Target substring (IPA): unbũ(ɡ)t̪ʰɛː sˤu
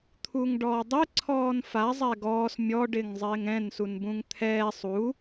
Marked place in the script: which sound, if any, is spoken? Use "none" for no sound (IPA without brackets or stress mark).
ŋ